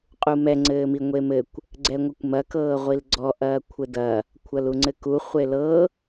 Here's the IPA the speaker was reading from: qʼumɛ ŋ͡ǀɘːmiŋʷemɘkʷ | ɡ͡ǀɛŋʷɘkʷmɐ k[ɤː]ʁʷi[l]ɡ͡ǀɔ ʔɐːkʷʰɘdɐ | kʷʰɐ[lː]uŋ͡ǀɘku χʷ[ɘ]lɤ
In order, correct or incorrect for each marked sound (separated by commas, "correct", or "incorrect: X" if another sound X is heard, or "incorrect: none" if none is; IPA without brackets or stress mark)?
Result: correct, correct, incorrect: l, incorrect: e